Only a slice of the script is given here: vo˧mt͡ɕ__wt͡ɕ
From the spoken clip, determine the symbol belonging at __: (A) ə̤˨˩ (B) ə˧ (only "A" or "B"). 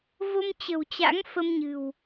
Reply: A